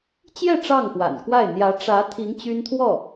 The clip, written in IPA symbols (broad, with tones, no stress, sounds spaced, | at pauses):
t͡ɕ j ɛ˥˧ ʈ͡ʂ ɑ˥˩ ŋ x w a̰˨˩ n k w a˥˩ ɪ̯ n̪ j ä˧˥ ʈ͡ʂ ä˧˥ t̪ʰ i˧˥ ŋ t͡ɕ y˥ n t̪ʰ w ɔ˥˩